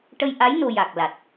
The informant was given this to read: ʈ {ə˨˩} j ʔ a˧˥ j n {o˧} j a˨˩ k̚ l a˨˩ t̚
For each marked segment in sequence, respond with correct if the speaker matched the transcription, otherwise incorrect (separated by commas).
incorrect, correct